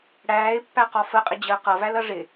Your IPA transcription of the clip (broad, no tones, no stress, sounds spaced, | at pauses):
ɽ æː ɪ̯ pː æ q ɔ f ə qʼ ɪ d͡ʑ əː q ʌ v æ l ʌ ʐ ɪ